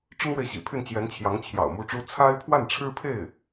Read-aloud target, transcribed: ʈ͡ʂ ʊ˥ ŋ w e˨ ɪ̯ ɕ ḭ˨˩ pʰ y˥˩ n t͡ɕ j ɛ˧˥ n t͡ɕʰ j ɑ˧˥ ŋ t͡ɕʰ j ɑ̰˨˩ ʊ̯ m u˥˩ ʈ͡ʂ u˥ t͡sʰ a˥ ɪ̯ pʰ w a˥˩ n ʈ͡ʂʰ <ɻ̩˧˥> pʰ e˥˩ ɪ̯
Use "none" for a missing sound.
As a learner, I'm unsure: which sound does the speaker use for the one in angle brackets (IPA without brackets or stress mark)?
ɻ̩˥